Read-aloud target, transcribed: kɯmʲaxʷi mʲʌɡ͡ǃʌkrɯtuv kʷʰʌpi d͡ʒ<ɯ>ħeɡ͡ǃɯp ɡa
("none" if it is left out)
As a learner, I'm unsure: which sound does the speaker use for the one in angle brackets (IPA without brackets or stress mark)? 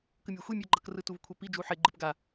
u